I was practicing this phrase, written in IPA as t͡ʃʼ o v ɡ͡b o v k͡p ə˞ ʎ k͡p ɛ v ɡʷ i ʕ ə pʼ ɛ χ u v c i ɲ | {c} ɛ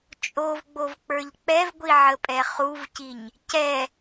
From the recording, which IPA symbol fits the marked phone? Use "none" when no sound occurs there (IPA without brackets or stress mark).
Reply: c